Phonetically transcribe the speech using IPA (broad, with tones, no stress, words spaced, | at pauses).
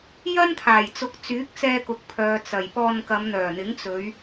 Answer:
jɐ˥nt̪ʰaː˨˩jt͡sʊ˨˥k̚t͡syː˨˥k̚ t͡sɛː˧kʊ˨k̚pʰœː˨ t͡sɐ˨˩j pɔː˧nkɐ˨˧mn̪œː˨˩n̪ɪ˨˥ŋ t͡sɵ˨˧ɥ